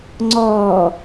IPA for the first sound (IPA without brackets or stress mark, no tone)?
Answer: ŋ͡ǀ